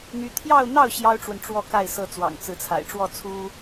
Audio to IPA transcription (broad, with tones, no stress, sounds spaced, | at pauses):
n̪ y˥ t̪ʰ j ɑ˥˧ ʊ̯ n̪ ɑ˥˩ ʊ̯ ɕ j ɑ˥ ʊ̯ ʈ͡ʂ w ə˨ n ʈ͡ʂ w ɔ˥˧ k a˥˩ ɪ̯ s ɤ˥ t͡s w ɑ̰˨˩ ŋ t͡s ɹ̩˧˥ t͡sʰ a̰˨˩ ɪ̯ ʈ͡ʂ w ɔ˥˩ t͡sʰ u˥